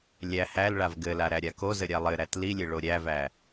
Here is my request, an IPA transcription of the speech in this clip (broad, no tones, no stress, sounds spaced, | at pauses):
lʲ æ h æ l ɭ a v ɡ ɘ l a ɾ æ ɾʲ a k o z ɘ ɾʲ a lˠ ɘ ɾ æ t l i lʲ ɘ ɭ o ɾʲ æ v æ